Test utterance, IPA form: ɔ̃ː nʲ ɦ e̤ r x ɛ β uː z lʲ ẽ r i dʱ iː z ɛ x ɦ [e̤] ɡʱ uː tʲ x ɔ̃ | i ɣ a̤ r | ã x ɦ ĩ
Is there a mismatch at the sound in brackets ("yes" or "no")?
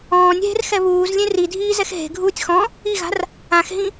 no